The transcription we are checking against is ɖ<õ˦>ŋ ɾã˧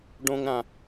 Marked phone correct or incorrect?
correct